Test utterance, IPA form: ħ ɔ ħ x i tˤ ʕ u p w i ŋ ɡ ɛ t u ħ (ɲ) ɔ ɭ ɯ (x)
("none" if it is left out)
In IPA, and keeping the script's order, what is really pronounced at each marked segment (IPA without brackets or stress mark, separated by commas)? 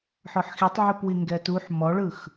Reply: m, x